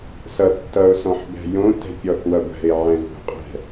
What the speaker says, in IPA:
s ʌ θ t ʌ ʊ̯ s ɔ̃ ħ b ɛ̤ j õ t ɛ̤ pʲ ɔ θ w ʌ ɡʷ ɛ̤ ɪ̯ ʕ ɛ̃ ɣ ṳ qʼ ɛ̤

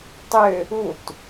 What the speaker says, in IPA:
tˤ ʏ | u t

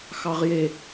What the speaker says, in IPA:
x ɑ ʁ j e

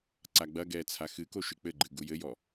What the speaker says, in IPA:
ǀ a ɡ͡b ɐ ɡ ɛː t͡sʰ a x ɨ k o ʃ ɨ k͡p ɘ ɡ͡ǃ ɨ ɡ u j ɘ j ɔ

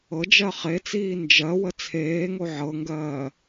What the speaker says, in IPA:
ɤ d͡ʒ ɜ χ e t͡s iː n d͡ʒ ɜ w ə t͡sʰ eː ŋ o ʕ ɤ ŋ ɡ ɜː

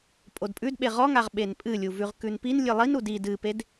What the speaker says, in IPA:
pʼ o d pʼ ʉ d ɓ e ʁ ɔ ŋ a ʁ ɓ e n pʼ ɨ lʲ u v ʉ ʁ k ʉ n p i n lʲ ɨ lˠ i n u d i d ɨ p e d

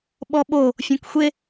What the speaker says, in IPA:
ɓ ɔ ɓ o | fʲ õ k xʷ e

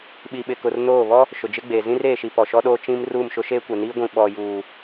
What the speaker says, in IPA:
ɓ i˨ ɓ ɪ˨ k ʊ˨ r n oː˦˨ β ɔ˦ | ʃ ʊ˨ d͡ʒ ɪ˦ ɡ͡b eː˨ z ĩ˦ r eː˨ ʃ i˨ p ɔ˨ ʃ ɔ˦ ɗ oː˦ t͡ʃ ĩ˦ m r uː˦˨ m ʃ ʊ˦ ʃ eː˦ kʷ ɛ˨ n iː˦ ɡʷ ĩ˨ ɓ ɔ˨ j uː˨

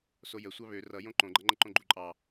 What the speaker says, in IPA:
s o j ə sʷ ɑ β ø r ʌ j õ ǃ õ ɡ͡ǃ ʌ ŋ͡ǃ ə ǃ õ ɡ͡ǃ u ǃʼ ɑ

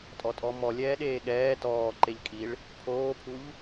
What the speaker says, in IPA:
tʼ ɔ tʼ ɔ m ɔ lʲ ɛː ɗ eː ɠ ɛː t ɔː ǃ e ʎ kʼ i ɭ | pʰ oː pʰ u ʎ

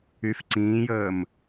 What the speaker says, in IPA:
y f ǀ ĩː j əː m

